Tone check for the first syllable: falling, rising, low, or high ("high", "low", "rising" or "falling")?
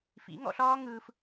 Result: rising